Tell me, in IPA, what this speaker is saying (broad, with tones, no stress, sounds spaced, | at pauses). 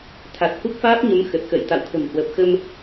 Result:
t̪ʰ a˨˩ t̚ h u˦˥ k̚ f aː˦˥ p̚ ɲ ə˨˦ m x ə˨˩ t̚ x ə̰ː˧˨ j t̪ a̰˧˨ w t̪ʰ ə̤˨˩ m h w əː˨˩ p̚ x ə˧ m